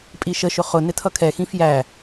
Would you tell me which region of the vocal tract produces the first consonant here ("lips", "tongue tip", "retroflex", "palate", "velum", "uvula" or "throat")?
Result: lips